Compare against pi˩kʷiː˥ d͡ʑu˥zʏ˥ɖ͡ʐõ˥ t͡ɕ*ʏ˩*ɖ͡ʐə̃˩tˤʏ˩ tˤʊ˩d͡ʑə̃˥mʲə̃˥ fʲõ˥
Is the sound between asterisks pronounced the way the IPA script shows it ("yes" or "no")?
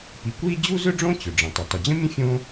yes